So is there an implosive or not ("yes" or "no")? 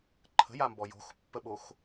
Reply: yes